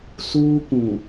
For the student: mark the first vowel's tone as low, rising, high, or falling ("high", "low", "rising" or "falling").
high